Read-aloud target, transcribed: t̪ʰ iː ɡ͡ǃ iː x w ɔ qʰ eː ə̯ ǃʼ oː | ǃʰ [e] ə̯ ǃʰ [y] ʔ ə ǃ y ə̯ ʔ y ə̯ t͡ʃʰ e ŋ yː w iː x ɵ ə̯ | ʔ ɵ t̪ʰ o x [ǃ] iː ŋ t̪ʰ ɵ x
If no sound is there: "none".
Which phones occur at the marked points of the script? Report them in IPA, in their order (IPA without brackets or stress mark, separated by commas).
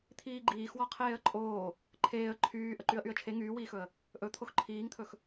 eː, yː, ǃʰ